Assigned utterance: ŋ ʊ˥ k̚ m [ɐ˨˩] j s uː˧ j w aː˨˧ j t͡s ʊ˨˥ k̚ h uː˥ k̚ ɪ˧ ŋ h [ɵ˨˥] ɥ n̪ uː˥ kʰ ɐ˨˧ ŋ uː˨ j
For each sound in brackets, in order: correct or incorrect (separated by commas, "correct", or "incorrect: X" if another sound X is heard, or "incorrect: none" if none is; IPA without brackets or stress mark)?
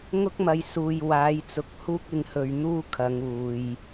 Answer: incorrect: ɐ˧, incorrect: ɵ˧